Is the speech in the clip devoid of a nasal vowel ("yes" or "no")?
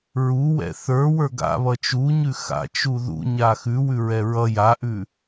yes